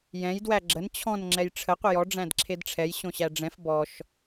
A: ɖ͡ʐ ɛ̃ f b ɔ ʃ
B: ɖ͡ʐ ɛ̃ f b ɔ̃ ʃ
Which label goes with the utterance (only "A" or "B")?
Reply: A